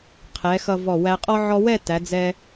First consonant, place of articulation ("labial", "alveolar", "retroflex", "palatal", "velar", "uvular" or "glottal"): uvular